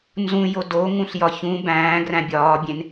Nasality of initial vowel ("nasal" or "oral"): nasal